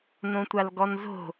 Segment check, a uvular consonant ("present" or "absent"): absent